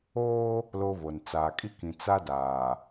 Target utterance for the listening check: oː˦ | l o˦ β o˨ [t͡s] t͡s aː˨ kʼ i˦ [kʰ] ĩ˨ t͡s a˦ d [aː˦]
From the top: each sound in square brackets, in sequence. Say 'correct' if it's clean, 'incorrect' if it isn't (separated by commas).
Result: incorrect, incorrect, incorrect